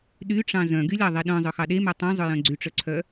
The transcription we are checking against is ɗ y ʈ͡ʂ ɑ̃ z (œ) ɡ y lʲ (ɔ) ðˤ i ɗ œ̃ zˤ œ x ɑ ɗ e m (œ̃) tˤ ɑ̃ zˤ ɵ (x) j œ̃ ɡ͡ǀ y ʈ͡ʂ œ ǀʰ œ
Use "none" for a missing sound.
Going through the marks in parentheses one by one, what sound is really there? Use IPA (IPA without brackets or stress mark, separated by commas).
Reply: œ̃, ɑ, œ, none